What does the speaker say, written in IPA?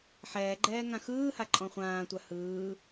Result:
ħ ɛː ɡ͡ǃ ɛː ŋ ã x ɯː h a ǃʼ ɔ̃ χʷ ãː tʷ a h ɯː

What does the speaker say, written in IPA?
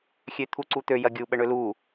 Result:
xʲ ø t̪ʰ u ǀ u t̪ ø j ɐ ɡʲ u ɓ ə ɳ ø l u

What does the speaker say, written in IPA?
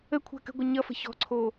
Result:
ə kʷʰ a̤ k ə̤ ɡʷ ʌ ɲ ʌ f ə̤ ç ɔ̤ ǀʰ oː

